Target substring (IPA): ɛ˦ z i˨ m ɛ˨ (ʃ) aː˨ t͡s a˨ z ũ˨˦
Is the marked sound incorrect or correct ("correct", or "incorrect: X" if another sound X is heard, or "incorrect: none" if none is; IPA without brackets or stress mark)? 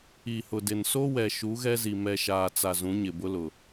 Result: correct